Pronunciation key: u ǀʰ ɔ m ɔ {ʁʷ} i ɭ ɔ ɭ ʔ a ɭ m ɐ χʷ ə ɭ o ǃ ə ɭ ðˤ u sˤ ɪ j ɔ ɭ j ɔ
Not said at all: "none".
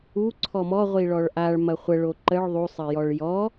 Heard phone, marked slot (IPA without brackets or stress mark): ʁʷ